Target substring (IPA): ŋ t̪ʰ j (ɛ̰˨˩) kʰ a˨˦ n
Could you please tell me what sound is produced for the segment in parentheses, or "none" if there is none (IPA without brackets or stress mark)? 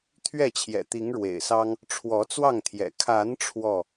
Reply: ɛ̰˨˩